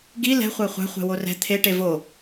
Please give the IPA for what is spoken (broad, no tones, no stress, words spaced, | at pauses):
ɡi lɛ̤ χʷæχʷæ̤ χʷɛ̤worɛ̤ t̪ʰe ʈevo